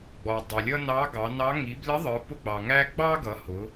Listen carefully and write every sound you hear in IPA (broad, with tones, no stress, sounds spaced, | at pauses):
ɡ͡b ɔ˩ dˤ ʌ˩ lʲ ʌ˧ n ɑ˧˥ ɡ ɑ˩˧ n ɑ˧˥ ŋ i˩˧ b l ɪ˧˥ ðˤ ə˞˩˧ p ʊ˧ ɡ͡b ɑ˩ ŋ æ˧ ɡ͡b ɑ˥ ɡ ʌ˩˧ h ʊ˩˧